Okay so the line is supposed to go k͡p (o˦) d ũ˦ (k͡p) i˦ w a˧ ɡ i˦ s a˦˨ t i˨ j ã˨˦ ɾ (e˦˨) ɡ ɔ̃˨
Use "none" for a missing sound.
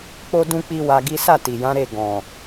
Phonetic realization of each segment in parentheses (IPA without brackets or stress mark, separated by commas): o˦, k͡p, e˦˨